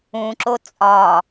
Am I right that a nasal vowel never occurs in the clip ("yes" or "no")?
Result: no